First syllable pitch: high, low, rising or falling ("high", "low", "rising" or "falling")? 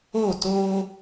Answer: falling